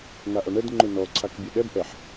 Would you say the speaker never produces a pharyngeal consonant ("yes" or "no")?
no